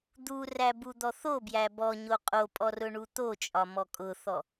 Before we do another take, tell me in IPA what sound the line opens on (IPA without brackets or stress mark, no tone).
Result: d̪